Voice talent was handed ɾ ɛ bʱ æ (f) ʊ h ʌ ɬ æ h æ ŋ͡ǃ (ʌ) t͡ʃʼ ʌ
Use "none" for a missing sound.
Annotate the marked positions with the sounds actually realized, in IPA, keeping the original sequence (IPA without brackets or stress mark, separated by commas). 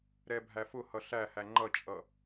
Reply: f, ʌ